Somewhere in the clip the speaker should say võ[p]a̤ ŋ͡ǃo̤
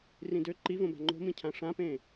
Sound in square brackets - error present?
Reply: yes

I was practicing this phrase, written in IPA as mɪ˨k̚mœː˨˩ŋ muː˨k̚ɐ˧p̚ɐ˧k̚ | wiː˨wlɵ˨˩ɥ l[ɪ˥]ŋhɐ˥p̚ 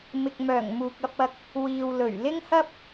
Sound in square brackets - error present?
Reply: no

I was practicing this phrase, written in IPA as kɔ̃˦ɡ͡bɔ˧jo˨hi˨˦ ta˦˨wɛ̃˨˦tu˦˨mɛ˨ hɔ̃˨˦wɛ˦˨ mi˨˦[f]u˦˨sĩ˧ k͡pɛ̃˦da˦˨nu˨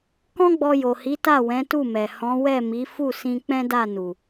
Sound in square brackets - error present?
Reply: no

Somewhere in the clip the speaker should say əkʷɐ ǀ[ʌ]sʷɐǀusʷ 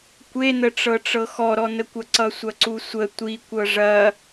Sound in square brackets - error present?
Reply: no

